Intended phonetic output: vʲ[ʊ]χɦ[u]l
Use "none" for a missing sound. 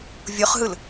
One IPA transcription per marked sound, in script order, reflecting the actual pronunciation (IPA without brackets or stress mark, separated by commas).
ʊ, ɯ